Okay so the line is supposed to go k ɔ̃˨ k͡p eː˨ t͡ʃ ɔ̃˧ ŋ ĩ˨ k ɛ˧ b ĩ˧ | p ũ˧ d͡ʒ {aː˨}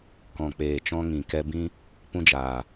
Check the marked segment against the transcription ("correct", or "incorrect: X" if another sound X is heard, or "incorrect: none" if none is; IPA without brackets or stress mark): correct